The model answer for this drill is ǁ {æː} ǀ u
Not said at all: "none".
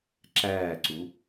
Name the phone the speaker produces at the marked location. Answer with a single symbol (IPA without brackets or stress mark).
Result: æː